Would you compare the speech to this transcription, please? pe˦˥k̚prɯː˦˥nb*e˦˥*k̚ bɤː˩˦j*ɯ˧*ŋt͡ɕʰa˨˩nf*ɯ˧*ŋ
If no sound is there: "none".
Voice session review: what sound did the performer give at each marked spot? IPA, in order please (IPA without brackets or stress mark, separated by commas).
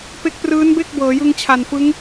e˥˩, ɯ˧, ɯ˦˥